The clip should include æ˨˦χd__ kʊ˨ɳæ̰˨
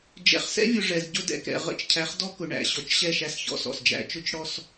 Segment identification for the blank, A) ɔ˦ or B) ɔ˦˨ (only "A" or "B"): A